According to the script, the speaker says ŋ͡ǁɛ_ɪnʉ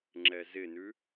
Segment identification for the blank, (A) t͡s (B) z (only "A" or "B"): B